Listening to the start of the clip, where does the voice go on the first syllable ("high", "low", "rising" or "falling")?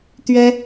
high